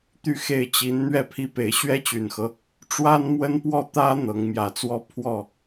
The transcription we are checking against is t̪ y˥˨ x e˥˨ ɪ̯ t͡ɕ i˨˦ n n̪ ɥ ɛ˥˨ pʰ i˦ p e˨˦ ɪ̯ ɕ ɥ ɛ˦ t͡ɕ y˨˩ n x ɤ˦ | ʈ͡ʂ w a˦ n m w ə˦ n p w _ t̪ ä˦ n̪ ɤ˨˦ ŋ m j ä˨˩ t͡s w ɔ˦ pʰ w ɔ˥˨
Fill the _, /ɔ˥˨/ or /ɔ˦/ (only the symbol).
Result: ɔ˥˨